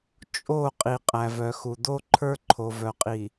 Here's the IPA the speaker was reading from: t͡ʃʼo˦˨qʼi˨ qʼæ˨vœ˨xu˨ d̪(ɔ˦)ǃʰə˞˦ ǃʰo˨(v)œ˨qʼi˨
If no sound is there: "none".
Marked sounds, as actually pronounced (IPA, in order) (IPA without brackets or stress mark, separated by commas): o˦, v